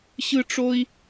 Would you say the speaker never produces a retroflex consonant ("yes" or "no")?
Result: no